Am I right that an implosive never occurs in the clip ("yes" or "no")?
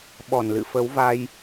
no